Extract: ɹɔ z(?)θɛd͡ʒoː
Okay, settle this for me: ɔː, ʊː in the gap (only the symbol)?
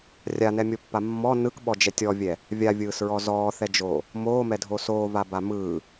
ɔː